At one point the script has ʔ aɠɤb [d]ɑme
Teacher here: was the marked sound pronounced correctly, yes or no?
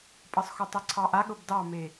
yes